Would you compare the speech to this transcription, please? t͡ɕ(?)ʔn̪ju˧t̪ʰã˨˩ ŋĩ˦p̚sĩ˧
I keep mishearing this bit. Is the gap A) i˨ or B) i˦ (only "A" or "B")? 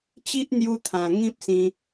B